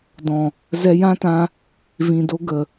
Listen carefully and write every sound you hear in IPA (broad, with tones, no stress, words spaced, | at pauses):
dɔ̃˨ | zɛ˧jã˦tã˧ | vĩ˨do˧ ɡə˨